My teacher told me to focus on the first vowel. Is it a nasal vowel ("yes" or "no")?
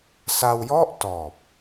no